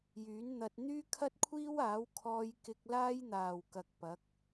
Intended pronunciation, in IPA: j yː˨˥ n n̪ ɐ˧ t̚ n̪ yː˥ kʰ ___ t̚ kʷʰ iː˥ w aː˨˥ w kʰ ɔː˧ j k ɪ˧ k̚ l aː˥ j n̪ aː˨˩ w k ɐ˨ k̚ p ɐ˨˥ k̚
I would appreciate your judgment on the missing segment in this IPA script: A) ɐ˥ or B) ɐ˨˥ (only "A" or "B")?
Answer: A